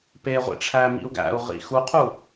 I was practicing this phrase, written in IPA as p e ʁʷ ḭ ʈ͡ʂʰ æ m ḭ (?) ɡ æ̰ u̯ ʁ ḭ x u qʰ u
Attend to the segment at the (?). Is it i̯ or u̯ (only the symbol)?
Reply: u̯